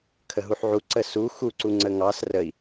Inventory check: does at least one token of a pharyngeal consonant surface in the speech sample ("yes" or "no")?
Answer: yes